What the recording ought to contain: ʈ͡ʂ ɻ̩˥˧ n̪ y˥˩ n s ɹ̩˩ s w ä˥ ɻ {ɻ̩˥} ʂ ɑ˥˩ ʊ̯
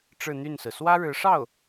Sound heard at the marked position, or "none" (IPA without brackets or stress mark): ɻ̩˧˥